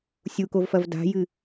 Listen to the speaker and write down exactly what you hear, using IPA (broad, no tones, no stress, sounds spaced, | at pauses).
sʲ u k o v f ɐ v d a̤ j ɨ